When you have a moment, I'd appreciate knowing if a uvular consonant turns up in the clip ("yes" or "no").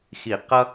yes